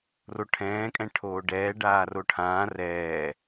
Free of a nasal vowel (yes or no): no